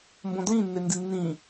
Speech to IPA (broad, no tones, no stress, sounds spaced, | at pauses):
m b õ d l ĩ nː e n d i nː ĩ